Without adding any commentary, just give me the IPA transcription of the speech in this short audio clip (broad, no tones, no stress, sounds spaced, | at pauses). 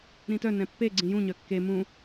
ɾ ĩ t œ n ɛ̃ pː e ɡ͡ǀ ĩ j ũ ɲ œ kː e m ũ